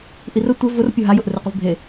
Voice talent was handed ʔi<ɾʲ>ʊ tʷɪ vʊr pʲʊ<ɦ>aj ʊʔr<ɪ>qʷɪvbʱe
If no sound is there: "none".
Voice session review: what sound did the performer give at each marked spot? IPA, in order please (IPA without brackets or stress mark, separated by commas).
r, ɦ, ɪ